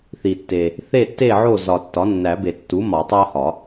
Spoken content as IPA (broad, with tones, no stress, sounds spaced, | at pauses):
θ i˨ tː e˨ | θ e˥˨ tː e˥˨ ʕ o˥˨ z ɒ˨ tː ɒ˩˥ nː æ˨˩˦ b e˨ tː u˩˥ m ɒ˨˩˦ tˤ æ˦ h ɒ˨˩˦